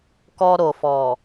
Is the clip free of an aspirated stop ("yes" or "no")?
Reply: yes